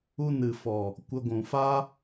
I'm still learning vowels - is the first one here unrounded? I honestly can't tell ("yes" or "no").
no